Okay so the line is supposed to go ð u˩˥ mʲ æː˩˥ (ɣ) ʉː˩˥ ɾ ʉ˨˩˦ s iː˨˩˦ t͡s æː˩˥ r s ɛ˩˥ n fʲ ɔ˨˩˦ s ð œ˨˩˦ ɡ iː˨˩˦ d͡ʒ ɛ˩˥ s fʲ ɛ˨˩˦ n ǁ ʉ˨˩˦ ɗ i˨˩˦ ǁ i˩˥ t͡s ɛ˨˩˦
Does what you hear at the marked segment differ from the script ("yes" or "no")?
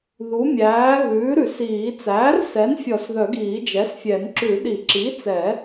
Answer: no